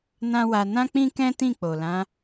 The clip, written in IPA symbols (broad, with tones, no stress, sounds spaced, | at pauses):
n ã˦ w a˧ n ã˦ k͡p ĩ˦ k ɛ̃˦ t ĩ˦˨ k͡p o˨ l ã˨˦